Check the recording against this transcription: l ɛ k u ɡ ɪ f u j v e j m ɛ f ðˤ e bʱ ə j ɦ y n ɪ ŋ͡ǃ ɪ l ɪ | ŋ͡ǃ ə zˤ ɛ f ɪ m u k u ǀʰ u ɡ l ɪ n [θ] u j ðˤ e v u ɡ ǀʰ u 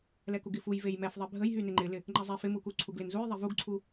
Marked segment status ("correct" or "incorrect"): incorrect